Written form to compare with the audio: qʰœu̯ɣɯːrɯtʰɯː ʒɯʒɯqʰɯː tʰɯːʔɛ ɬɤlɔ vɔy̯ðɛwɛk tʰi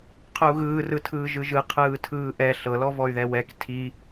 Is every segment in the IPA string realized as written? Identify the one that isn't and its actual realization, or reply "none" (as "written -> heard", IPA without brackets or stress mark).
none